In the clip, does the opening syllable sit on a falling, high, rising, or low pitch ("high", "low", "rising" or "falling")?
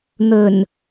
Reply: low